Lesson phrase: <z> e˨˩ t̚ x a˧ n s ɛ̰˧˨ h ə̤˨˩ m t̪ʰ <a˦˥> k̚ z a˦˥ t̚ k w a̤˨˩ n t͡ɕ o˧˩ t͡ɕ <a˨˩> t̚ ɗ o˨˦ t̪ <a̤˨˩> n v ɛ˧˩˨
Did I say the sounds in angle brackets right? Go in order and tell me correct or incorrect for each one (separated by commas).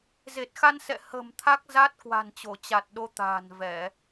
correct, correct, correct, incorrect